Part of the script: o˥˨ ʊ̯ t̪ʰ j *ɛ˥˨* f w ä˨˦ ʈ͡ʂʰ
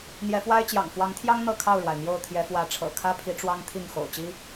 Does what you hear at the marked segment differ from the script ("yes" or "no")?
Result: yes